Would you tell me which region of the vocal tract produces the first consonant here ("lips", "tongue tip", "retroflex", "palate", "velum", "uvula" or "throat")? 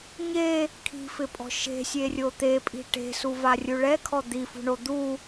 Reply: palate